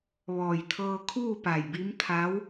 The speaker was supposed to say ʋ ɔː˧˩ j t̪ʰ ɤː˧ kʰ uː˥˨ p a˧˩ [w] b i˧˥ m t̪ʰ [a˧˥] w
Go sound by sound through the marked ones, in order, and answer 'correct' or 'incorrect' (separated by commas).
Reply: incorrect, correct